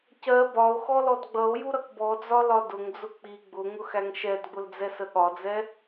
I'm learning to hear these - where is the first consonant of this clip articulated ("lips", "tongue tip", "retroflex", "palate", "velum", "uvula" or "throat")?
palate